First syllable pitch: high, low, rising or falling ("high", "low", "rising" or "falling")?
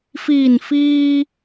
low